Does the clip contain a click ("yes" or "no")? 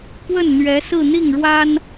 no